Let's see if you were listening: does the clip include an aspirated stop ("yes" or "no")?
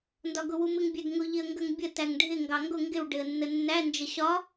no